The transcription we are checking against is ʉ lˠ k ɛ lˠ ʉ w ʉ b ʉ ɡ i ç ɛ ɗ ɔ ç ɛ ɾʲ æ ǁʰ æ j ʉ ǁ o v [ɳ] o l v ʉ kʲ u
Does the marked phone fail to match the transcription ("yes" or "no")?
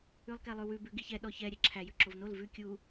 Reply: yes